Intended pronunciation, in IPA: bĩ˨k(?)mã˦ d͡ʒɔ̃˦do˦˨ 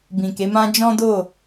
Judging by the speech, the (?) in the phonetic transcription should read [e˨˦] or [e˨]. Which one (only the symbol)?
e˨˦